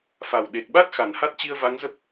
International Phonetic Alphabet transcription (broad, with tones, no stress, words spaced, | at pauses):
fa˨˩wɗe˨˩k̚ɓa˦˥t̚ xa˨˩nha˦˥t̚t͡ɕi˧ə̯ va˨˦ŋzə˦˥p̚